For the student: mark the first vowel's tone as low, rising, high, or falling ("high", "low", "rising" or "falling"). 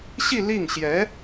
falling